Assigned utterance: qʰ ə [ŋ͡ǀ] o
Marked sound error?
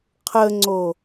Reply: no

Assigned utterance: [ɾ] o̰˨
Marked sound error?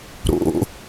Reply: no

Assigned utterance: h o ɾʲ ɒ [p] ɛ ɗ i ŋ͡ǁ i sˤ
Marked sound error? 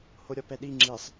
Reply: no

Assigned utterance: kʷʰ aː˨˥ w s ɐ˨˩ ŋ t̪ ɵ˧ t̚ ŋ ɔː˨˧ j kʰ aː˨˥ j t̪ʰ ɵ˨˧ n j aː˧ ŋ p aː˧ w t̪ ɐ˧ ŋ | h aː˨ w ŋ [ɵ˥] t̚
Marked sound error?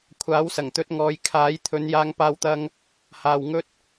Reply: yes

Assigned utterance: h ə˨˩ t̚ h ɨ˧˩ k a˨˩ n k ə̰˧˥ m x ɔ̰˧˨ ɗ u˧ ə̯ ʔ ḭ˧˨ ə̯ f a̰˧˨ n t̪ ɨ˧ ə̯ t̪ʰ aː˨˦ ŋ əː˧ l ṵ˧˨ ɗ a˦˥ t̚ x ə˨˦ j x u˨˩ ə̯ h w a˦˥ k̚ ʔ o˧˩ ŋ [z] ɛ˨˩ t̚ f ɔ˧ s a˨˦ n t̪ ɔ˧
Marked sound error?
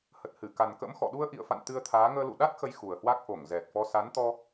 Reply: no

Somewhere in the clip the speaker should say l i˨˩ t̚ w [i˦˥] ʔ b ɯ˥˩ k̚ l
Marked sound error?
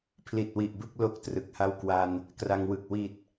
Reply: yes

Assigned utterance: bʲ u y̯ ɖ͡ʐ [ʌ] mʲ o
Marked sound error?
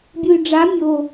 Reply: yes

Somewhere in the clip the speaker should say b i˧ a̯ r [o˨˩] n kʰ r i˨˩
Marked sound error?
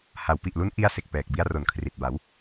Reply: no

